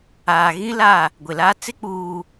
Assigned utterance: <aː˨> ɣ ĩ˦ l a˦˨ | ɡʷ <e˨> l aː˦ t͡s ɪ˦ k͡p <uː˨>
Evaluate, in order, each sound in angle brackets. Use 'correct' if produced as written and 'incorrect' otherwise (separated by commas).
correct, correct, correct